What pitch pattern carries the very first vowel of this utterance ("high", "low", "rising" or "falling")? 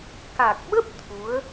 low